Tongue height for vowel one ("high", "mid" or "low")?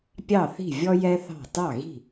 low